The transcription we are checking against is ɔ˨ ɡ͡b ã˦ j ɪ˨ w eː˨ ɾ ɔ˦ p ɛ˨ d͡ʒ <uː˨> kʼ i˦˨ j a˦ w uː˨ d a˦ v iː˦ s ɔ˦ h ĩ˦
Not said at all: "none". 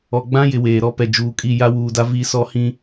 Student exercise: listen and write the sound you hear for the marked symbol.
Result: uː˨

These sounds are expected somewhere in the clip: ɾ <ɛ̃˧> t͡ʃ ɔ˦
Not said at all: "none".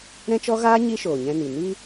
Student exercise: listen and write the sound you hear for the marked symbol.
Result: ɛ̃˦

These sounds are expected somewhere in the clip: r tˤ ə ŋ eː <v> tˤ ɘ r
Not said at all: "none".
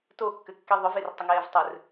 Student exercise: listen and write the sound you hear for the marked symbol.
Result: v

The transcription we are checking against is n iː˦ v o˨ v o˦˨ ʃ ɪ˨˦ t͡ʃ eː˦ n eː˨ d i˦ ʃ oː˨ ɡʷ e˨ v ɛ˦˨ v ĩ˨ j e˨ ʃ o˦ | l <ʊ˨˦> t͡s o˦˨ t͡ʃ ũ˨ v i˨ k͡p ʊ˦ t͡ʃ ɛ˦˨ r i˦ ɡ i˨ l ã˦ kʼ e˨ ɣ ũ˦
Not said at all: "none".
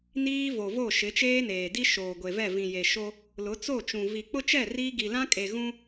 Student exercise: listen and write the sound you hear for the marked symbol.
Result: ʊ˨˦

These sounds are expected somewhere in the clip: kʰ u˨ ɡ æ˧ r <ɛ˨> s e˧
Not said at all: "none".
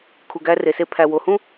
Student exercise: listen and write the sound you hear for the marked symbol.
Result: e˨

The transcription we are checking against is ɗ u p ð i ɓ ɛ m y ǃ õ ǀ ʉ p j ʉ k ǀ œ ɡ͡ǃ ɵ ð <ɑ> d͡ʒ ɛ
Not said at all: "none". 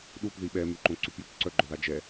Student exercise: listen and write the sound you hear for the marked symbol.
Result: ɑ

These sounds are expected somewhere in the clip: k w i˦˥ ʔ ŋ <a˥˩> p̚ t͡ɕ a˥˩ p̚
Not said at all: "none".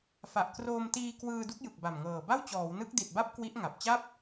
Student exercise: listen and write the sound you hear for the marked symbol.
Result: a˨˩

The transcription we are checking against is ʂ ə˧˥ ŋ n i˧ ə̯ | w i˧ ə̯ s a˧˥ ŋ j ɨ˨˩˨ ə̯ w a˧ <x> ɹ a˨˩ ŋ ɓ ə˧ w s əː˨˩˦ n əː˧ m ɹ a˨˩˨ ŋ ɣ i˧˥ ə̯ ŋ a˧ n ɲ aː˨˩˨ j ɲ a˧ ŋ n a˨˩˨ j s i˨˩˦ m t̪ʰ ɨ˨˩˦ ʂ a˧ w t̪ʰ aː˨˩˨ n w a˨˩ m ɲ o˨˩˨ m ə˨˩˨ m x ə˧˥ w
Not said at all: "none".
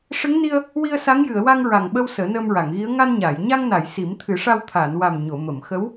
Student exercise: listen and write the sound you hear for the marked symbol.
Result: ŋ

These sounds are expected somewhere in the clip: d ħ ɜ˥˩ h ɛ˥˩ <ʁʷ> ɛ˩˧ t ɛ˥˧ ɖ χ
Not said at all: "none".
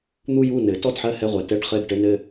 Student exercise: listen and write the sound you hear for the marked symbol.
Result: ʁʷ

